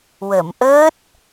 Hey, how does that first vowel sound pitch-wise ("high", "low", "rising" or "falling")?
low